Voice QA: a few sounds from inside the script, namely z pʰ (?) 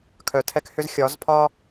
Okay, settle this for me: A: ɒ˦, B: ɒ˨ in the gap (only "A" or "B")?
A